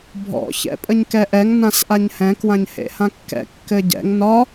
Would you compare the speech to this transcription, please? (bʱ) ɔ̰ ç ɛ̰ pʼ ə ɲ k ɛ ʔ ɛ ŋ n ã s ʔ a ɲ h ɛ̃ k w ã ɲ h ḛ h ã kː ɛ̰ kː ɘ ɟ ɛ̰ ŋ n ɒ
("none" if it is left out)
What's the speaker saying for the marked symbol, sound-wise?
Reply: bʱ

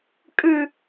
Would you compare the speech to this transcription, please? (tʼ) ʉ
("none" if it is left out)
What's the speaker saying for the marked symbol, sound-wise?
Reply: kʼ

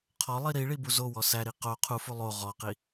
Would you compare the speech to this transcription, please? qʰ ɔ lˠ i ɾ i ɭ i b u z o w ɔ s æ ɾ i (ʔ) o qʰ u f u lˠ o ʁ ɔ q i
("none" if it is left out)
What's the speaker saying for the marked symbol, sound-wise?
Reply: q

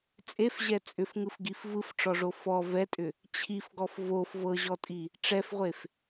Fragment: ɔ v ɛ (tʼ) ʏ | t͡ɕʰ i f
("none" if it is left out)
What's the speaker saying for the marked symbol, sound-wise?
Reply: tʼ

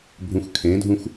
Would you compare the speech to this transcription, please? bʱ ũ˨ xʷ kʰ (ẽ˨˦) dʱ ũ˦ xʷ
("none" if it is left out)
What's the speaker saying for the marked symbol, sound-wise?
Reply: ẽ˨˦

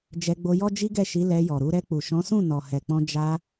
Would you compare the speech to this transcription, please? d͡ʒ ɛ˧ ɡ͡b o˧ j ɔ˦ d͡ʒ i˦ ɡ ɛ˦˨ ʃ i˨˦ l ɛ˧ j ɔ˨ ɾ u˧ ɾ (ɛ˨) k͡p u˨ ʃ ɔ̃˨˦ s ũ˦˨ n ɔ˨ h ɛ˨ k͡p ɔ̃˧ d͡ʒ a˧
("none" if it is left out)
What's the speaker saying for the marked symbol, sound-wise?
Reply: ɛ˧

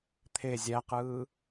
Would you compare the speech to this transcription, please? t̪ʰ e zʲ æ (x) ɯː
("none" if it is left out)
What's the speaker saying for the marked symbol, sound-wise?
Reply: q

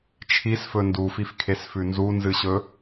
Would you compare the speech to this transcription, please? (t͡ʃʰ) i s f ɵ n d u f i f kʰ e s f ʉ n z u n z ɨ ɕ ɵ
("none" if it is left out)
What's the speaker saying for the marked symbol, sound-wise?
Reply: t͡ʃʰ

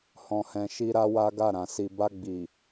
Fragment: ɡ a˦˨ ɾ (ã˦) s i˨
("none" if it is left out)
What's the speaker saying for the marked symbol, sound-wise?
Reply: ã˨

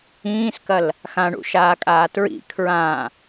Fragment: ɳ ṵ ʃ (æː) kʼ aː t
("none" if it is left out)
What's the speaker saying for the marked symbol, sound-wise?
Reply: aː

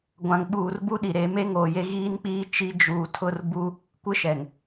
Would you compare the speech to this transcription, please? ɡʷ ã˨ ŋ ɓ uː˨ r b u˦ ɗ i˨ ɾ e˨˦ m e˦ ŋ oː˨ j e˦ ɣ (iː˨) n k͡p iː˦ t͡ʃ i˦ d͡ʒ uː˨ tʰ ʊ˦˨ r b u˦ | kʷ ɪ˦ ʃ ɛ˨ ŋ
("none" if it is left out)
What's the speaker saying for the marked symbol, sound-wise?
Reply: iː˦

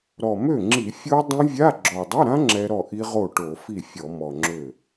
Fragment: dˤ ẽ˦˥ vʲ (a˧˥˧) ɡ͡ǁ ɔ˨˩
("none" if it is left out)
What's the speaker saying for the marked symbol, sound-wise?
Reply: a˧˥˧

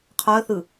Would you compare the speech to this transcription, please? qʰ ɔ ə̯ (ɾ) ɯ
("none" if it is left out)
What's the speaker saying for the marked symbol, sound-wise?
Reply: θ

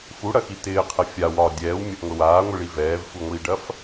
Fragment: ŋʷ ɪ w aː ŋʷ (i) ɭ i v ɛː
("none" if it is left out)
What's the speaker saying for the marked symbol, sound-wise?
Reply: i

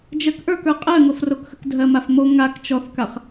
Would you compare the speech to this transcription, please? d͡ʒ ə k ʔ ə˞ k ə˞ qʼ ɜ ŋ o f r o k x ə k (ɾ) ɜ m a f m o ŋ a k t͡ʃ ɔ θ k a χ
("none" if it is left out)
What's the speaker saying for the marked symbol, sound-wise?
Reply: dʱ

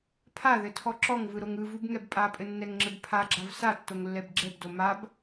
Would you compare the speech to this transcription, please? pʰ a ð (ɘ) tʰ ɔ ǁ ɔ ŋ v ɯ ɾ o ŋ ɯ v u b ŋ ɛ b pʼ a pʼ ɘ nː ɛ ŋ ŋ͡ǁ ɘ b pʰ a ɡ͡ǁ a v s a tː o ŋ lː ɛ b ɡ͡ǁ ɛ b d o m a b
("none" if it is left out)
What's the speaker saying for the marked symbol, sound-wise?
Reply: ɘ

